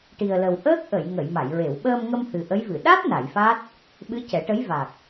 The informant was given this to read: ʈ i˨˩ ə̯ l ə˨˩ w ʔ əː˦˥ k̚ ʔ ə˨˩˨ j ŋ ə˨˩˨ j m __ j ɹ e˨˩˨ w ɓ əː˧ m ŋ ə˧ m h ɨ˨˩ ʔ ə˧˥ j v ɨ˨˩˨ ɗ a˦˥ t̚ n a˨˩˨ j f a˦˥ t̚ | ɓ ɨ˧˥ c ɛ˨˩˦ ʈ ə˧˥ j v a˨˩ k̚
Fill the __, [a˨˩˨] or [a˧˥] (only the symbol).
a˨˩˨